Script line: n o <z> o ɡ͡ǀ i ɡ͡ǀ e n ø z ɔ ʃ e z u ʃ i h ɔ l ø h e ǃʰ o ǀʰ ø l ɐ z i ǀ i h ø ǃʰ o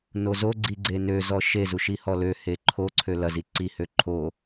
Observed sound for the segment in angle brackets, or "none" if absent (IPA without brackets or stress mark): z